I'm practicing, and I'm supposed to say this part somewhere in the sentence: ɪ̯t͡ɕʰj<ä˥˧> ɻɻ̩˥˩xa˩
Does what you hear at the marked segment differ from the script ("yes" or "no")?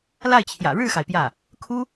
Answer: yes